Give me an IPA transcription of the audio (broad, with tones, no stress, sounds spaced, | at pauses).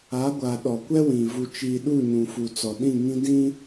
a˨˦ ɡʷ a˨ ɗ ɔ˨ kʷ ɛ˦ w ĩ˨ v u˨ t͡ʃ iː˨ ɗ u˦˨ ɲ ũ˨ f u˨ t͡s ɔ˨ ɗ ĩ˦˨ ŋ ĩ˦ d ĩ˦